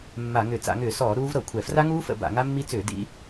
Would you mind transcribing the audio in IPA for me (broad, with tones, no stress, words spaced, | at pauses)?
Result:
mːa˧˩˧ŋʏ˧˩˧ t͡sa̰˧˩˧ŋʏː˧˩˧sɔː˧˩˧ ɾuː˦˥vɾɤ˧˩˧kʷʰɛ˧˩˧ fra˦˥ŋuː˦˥fə̰˧˩˧ ba̰˧˩˧ŋa˦˥mːi˦˥ t͡sʏː˧˩˧ dḭ˦˥